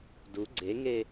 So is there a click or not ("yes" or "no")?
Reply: yes